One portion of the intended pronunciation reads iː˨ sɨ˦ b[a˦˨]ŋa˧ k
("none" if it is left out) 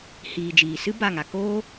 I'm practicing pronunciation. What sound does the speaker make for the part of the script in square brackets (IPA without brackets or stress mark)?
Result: a˦˨